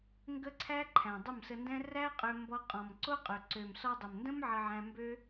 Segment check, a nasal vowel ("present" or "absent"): present